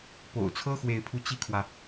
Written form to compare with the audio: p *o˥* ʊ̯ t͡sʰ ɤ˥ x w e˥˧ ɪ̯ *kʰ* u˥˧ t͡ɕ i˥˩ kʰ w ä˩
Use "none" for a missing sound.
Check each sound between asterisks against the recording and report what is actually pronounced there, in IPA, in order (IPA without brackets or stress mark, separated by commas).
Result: o̰˨˩, pʰ